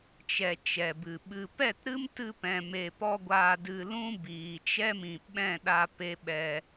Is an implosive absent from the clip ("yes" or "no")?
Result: no